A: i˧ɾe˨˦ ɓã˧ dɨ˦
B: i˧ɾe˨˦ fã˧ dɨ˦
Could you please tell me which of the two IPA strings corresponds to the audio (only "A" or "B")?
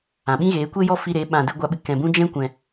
A